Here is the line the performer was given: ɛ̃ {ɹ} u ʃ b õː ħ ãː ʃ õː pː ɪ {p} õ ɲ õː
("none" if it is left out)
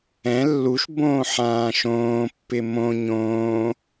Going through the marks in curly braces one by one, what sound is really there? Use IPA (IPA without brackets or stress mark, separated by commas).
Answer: lː, m